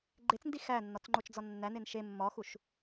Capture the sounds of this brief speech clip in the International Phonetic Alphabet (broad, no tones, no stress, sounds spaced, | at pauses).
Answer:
ɡ͡ǃ e t͡s n d i x æ nː ɒ t͡s ŋ͡ǃ o t͡ʃ d͡z ɒ nː æ n e n ʃ e mː ɒ x u ʃ